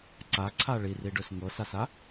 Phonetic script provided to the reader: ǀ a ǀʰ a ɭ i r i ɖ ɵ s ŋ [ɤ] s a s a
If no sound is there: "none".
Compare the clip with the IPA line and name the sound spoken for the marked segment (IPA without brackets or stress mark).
ɤ